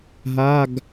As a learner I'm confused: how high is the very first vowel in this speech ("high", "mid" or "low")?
low